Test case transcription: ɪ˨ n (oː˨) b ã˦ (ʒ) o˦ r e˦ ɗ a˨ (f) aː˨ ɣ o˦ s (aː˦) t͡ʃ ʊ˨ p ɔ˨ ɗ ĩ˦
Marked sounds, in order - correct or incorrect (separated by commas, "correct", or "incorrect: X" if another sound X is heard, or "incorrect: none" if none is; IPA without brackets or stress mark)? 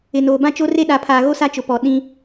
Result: correct, incorrect: t͡ʃ, incorrect: pʰ, incorrect: a˦